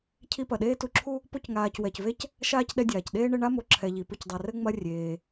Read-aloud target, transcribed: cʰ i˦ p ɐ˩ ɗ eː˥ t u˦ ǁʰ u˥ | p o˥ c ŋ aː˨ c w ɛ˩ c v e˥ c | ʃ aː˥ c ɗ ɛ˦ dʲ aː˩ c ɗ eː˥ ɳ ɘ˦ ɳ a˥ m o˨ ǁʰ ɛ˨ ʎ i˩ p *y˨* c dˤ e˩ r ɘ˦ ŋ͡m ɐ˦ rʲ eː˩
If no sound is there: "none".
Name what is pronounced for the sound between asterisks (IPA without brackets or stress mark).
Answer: ɨ˨